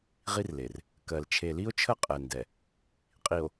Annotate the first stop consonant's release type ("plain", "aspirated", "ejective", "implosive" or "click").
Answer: plain